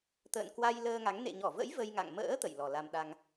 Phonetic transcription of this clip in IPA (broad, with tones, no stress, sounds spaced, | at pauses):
t̪ ə̰ː˧˨ n k w a˧ j l əː˧ ŋ a˨˦ ŋ n ḛ˧˨ ɲ ɔ˧˩ v ə̰˧˥ j v ə˧ j ŋ a̰˧˨ ŋ m ə̰ː˧˥ t̪ ə̰˧˨ j l ɔ˨˩ l a˧ m ɗ a˧ ŋ